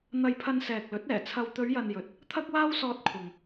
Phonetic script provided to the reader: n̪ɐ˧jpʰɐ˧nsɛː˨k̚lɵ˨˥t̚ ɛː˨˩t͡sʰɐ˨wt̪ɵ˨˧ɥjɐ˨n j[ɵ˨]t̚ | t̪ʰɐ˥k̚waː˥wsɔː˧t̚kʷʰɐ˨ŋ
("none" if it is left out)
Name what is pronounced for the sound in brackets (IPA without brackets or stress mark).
ɵ˨